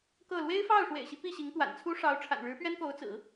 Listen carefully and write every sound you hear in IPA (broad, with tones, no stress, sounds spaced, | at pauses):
k ɤ˥˩ l w e˥ ɪ̯ f ɑ˥˩ ʊ̯ ʂ w ḛ˨˩ ɪ̯ ɕ i˦ p i˥˩ ɕ i˧˥ ŋ t̪ w a̰˨˩ n t͡sʰ u˥ ʂ ɑ˧˥ ʊ̯ ʈ͡ʂʰ a̰˨˩ n ɻ ɻ̩˧˥ p ɥ ɛ˥ n k o˧˥ ʊ̯ t͡s ɹ̩˨˩˦